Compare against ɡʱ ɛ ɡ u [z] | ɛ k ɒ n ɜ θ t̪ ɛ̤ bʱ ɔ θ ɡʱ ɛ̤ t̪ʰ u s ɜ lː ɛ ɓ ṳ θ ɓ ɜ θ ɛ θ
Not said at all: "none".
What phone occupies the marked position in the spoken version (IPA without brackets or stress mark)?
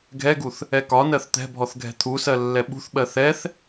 θ